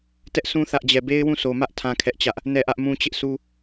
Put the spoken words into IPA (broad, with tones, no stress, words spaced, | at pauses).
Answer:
tɛ˦ʔsũ˦ θä˦ʔd͡ʑɛ˦˨ be˦ɪ̯wũ˦˨so˨mä˦ʔ tʰã˦kʰɛ˦ʔt͡ɕä˦ʔ | nɛ˦˨ʔä˦ʔmũ˦ t͡ɕɪ˦ʔsu˦